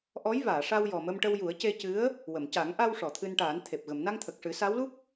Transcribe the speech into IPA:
ʔ ɔ˧˥ j v aː˨˩˨ ʂ a˧ w j ɔ˨˩ m ə˧ m ʈ ə˧ w j u˨˩˦ ə̯ c e˧ c ɨ˧˥ ə̯ | w ə˨˩˨ m c a˨˩˦ ŋ ʔ a˧ w ʂ ɔ˨˩˨ t̪ʰ ɨ˧ n ʈ aː˨˩˦ n t̪ʰ e˨˩ p̚ ɣ ə˨˩˨ m n a˧ ŋ t̪ʰ ə˨˩ k̚ ʂ ɨ˨˩˦ s a˧˥ w l u˦˥ k̚

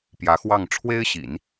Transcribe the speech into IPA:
p j ä˧˥ x w ɑ˥˩ ŋ ʈ͡ʂʰ w e˥ ɪ̯ ɕ ḭ˨˩˦ n

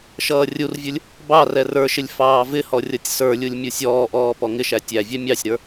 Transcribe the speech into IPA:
ʃ ʌː rʲ u r vʲ ʊ lʲ | b ɑ r ɛ r ə˞ ʃ ɪ lʲ f ɑː v ɪ h ɔ rʲ ʌ tʲ s ə˞ lʲ u lʲ mʲ u sʲ ɔː ʔ ɔː p ɔ ŋ ɪ ʃ æ tʲ æ vʲ ɛ mʲ ɑ sʲ ɾ ə˞

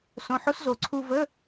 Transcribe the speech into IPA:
s õ˧˥˧ ħ o˥ s z o˧˩ ǀʰ u˧ v ə˧˥˧

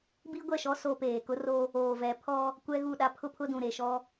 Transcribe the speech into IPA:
b i˦ ɡʷ ɛ˦˨ ʃ ɔ˦ s o˦ p eː˨ k ʊ˦ r o˦ | oː˨ v ɛ˨˦ pʰ ɔ˦ | kʷ ɛ˦ ɣ u˦˨ ɗ a˦ pʰ ʊ˦ pʰ ʊ˦ d ũ˨ ɾ e˨ ʃ ɔ˦

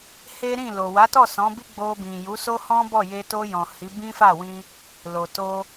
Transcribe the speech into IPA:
h e˦ ɾ ĩ˦˨ l o˨ w a˨˦ t ɔ˦˨ s ɔ̃˨˦ b i˦ ɡ͡b o˧ b ĩ˨ j u˨˦ s o˦ h ɔ̃˦ b ɔ˦˨ j e˧ t o˧ j ɔ̃˨ h i˨˦ b ĩ˦ f a˦˨ w ĩ˧ | l o˨ t o˧

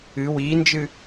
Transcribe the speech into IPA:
ɨ w i n d͡ʒ ɨ

